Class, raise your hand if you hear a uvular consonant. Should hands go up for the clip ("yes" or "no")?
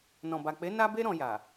no